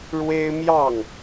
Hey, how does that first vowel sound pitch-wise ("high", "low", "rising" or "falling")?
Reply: high